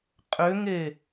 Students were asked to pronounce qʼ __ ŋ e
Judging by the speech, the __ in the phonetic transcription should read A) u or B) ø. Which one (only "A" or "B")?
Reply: B